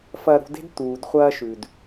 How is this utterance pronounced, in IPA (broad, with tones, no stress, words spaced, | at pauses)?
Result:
fɐ˧ɾṳ˧de̤˥d t̪uː˩dχʷɐː˧ ʃʉ˩d